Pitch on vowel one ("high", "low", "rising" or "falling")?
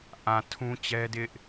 low